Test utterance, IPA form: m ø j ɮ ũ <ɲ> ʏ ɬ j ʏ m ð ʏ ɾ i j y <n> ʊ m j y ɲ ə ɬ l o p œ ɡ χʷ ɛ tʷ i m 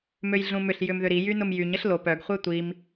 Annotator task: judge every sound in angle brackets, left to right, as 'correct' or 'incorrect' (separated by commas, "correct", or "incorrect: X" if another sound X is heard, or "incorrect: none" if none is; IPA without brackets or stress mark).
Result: incorrect: m, correct